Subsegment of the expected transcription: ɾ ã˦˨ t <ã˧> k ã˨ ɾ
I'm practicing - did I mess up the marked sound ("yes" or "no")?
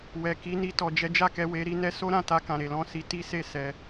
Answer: yes